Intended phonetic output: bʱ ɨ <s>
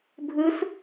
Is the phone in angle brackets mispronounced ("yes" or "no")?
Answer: no